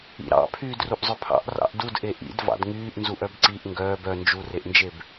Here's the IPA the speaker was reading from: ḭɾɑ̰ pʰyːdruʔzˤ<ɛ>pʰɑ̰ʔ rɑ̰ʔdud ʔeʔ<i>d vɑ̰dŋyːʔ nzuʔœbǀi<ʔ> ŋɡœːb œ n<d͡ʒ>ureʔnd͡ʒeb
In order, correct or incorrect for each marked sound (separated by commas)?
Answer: incorrect, incorrect, correct, correct